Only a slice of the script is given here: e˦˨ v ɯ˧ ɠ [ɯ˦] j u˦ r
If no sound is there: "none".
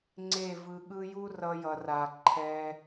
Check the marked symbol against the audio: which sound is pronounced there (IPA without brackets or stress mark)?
ɯ˦